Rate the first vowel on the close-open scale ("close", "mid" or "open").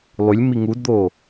close